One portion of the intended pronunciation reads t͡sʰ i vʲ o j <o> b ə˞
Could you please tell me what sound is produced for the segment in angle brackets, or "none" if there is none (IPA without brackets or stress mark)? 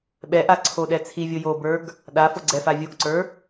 o